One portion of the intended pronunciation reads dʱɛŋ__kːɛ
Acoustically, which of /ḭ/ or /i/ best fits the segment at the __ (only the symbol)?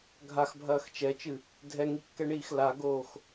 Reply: i